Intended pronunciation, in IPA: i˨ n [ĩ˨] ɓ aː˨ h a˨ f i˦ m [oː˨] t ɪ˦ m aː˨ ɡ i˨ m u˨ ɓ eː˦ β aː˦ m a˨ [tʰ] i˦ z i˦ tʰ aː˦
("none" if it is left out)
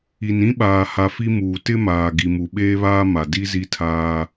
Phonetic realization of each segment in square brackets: ĩ˦, uː˨, d

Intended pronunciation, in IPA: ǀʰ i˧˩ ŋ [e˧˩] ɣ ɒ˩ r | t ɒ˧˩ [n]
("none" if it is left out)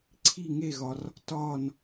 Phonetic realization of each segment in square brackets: e˧˩, n

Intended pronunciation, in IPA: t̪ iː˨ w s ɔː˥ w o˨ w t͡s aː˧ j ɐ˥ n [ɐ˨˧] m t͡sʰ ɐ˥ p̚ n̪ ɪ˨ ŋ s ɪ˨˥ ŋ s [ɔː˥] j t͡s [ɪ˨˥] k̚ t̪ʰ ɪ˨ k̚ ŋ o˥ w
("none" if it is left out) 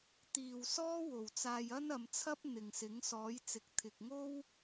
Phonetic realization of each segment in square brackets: ɐ˨˧, ɔː˨˥, ɪ˨˥

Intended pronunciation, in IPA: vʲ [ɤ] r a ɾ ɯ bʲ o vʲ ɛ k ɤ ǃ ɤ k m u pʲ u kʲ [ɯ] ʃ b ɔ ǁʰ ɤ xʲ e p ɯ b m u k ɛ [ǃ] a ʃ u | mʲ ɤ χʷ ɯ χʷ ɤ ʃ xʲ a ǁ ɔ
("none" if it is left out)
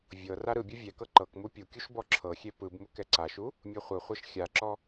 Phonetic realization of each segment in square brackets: ɤ, u, ǀ

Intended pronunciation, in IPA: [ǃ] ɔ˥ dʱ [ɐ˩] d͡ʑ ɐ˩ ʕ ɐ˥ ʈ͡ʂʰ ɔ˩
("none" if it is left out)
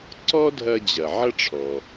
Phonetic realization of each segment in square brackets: ǀ, ɐ˧

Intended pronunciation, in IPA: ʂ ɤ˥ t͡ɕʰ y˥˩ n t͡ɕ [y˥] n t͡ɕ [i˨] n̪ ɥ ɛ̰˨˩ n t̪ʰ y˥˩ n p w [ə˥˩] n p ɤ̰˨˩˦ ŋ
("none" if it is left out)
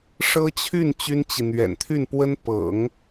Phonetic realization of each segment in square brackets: y˥, i˨, ə˥

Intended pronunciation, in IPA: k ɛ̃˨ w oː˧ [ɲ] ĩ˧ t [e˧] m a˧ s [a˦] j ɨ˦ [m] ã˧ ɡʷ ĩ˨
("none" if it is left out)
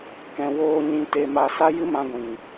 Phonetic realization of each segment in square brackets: ɲ, e˧, a˦, m

